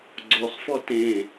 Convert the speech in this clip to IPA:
ɡ͡ǀ o χ f ɔ t ẽ

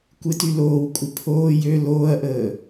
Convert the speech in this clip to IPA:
kʷ ɪ t y l oː w kʷʼ ɪ pʰ oː j ø l oː ɐ̯ ʔ əː

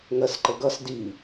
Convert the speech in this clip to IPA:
ŋ ɜ s ǃ ə ɡ ʌ s d i

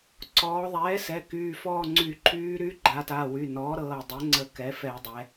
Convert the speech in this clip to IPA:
ǀ ɔː˩˧ ðˤ ɛː˩˥ s ɛ˩˧˩ k yː˩˧˩ f ɔː˦˨ ŋ͡ǀ y˧˩˧ ǃʰ yː˧˥ ɾ y˧˥ ɡ͡ǃ a˩˧ t a˩˧˩ w y˩˧˩ n ɔː˩˥ ɾ ɤː˩˧˩ dˤ ɛ˩˥ ŋ͡ǀ ə˧˩˧ k ɛ˩˥ f ɛ˧˩˧ dˤ ɛ˩˧

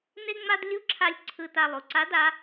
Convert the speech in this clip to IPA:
n e˥ ŋ͡m a˥ d lʲ u˧˥ ǁʰ a˧ lʲ ǀʰ ɯ˧ t a˧ lˠ u˩˧ ǀ a˧˥ d a˧˥

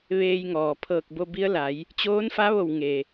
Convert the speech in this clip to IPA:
ʋ eː˧ j ŋ ɔː˩ pʰ ɤː˧˩ k̚ b o˧ b i˧˥ ə̯ l a˩˧ j | t͡ɕ oː˧˥ n f a˧˥ ʋ o˧˩ w ŋ e˩

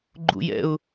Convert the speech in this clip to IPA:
ɡ͡ǃ ṵ j ɛ̰ ʊ̯

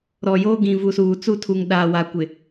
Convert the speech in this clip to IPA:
ɾ ɔ˨ j oː˦ ɡ ĩ˨ v u˨ s uː˨ t͡s u˦˨ tʰ u˨ ŋ ɗ aː˨ w a˨ kʷ ɪ˨

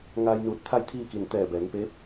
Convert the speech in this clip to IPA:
ŋ a˧ j n uː˧˩ t̚ t̪ʰ a˥˨ j t̪ʰ iː˥˨ k i˧˩ n t̪ ɛː˧˩ b ɛː˩˧ ŋ p eː˧˥ p̚

